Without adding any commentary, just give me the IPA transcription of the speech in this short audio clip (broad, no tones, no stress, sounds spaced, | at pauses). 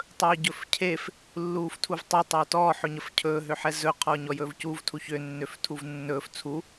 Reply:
tˤ ɵː ɟ ɵ f cʰ e f | lː uː f tʰ u v tˤ ɵ tˤ ɵː t ɔː ħ ɵ ɲ ə f cʰ ɵː ɦ ø ħ ɛ z ɵ qʰ ɔː ɲ ɔ j ɵː v c uː v tʰ u ç ø nː ø f tʰ u v nː ɵː f t͡sʰ u